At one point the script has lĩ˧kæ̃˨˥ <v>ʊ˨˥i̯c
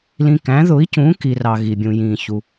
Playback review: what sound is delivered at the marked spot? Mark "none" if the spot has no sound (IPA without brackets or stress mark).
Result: ð